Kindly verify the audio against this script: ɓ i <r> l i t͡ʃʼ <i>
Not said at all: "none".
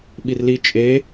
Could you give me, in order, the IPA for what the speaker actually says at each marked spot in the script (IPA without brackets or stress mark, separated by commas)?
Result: r, e